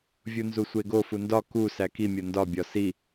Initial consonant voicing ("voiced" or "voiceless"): voiced